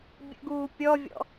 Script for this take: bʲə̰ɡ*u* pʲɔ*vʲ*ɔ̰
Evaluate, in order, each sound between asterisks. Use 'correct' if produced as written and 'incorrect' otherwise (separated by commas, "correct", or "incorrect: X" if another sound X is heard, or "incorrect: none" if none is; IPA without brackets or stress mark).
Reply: incorrect: uː, correct